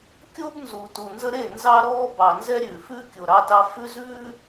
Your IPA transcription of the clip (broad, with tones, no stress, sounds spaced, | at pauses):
kʲ o˦ b n z u˨ t u˨ n z ə˦ ɾ e˦˨ n z ɑ˦ ɾ ɔː˦ b ɑ˨ n z ɛ˦ ɾʲ ʉː˨ f ʉ˦ kʲ o˨ ɾ ɑ˦ t ɑ˦ f ʉ˦ z ʉː˦